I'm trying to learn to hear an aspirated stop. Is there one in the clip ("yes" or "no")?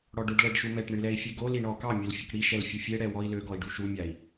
no